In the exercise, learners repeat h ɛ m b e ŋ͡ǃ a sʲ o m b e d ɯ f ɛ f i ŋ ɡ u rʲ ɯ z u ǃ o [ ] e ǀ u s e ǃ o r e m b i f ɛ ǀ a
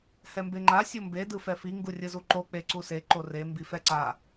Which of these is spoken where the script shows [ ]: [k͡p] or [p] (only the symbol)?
k͡p